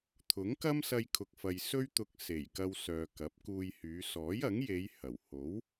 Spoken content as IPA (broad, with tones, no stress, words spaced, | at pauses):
t̪ʰʊ˨˥ŋkɐ˥m sɐ˧jkʰʊ˨k̚fɐ˨j sɵ˥ɥt̪ʊ˧k̚ se˨˩jkɐ˧w sœː˨kɐ˨˥p̚kuː˧jhyː˨˧ sɔː˨˥jɐ˨˥ŋje˨˧j hɐ˨˩w ho˨˥w